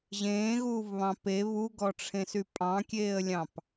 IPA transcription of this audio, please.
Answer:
ʑ ẽː ɣ uː v β ɑ̃ p e β u ɡ ɔ ʈ͡ʂʰ ẽ s y pʼ ɑ̃ kʲ eː ə̯ lʲ ɑ̃ p

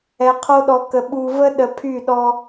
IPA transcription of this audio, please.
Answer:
ɛ˨ qʰ o˦ ɗ ɔ˨ k ə˨ ɓ u˨ v ə˦ ɗ ə˨ pʰ y˦˨ ɗ ɔ˦

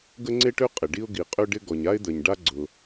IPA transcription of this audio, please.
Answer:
ɡ ə˥ ŋ͡ǀ e˥ ʈ ø˥ qʼ ɪ˩ ɖ i˥ ʊ̯ ɡ i˩ qʼ ø˥ ɖ ɪ˥ ɡ ɔ˩ ɲ a˥ ɪ̯ d̪ ə˩ ɲ ɖ a˥ ɡ͡ǀ ʊ˩

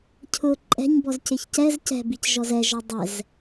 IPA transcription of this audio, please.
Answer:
cʰ ʊ ǃʼ ɛ̤ ɲ b ɔ z c ɪ ç c ɛ z c ɛ̤ b i c ʒ ɔ z ɛ ʒ ɔ dˤ ɛ z

